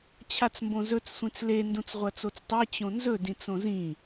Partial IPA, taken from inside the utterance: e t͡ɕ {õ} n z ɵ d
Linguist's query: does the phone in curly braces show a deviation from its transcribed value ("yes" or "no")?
no